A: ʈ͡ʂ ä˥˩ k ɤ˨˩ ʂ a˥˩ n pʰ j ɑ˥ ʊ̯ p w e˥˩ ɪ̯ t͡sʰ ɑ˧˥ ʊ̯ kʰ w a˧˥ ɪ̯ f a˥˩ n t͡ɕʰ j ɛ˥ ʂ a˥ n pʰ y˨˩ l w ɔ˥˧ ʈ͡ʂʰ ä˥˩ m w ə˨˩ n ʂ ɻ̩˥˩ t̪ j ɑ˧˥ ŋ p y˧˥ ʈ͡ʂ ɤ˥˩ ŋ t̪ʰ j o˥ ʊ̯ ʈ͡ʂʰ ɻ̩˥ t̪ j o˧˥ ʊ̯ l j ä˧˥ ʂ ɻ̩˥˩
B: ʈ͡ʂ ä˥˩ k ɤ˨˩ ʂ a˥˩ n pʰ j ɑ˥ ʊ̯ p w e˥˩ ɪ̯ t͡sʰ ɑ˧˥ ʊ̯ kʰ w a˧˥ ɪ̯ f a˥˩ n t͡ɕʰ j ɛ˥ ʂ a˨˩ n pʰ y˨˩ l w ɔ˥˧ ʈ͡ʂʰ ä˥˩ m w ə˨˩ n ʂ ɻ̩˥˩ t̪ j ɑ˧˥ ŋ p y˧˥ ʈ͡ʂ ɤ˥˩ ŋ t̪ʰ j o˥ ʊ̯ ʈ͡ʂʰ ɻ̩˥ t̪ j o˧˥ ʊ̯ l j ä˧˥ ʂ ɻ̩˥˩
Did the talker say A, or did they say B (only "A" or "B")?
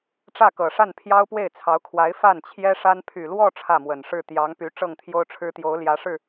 A